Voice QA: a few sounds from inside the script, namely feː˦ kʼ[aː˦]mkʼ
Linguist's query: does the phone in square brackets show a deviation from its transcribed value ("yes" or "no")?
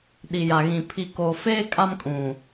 yes